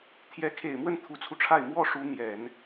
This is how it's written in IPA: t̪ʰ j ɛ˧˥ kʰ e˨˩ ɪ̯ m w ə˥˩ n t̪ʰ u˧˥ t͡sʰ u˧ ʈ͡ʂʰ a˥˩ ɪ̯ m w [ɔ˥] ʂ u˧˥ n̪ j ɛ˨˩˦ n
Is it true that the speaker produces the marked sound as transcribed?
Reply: yes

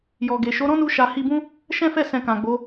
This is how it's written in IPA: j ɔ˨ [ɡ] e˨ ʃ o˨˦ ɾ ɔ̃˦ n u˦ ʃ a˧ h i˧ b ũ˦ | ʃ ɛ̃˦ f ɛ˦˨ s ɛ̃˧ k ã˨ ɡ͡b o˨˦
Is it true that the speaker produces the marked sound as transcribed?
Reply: yes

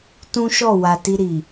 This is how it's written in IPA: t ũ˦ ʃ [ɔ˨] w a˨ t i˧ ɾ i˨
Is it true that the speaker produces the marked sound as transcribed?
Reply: no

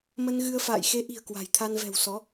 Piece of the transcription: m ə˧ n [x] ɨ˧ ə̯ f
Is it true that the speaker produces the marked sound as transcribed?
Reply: no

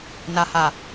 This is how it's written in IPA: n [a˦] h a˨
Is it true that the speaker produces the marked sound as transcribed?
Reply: no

